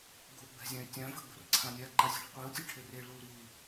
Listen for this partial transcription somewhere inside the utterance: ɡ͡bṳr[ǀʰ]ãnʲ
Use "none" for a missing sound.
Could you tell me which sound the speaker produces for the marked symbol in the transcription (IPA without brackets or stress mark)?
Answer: ǀʰ